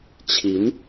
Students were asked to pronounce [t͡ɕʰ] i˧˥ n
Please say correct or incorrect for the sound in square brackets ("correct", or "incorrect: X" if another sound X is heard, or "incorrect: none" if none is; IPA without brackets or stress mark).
correct